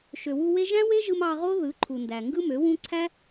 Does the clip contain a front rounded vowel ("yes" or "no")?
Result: yes